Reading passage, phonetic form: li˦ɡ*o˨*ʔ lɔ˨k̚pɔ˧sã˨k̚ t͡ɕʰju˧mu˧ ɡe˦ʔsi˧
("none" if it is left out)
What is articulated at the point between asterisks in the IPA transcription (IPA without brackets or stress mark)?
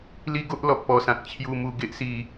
o˦